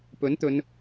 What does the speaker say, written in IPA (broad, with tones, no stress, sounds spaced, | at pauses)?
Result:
p ɵ˨˥ n t̪ ɵ˨˧ n